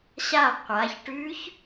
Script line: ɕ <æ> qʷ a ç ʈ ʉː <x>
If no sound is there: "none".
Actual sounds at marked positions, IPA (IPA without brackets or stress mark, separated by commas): a, ç